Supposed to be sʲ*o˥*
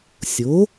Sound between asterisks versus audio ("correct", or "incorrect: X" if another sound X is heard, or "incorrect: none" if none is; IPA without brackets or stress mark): incorrect: o˩˥